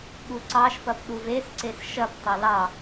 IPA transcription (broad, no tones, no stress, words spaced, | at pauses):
ɠuǀɑʃpɐp ɗuvesǀes ʃɐptˤɐ lɑ